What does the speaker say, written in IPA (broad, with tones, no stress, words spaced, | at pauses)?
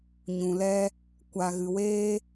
ɲũ˨lɛ˦ | kʷa˨ɣɨ˨weː˦